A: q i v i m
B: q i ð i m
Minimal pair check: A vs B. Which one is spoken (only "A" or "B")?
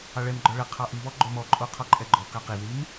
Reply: B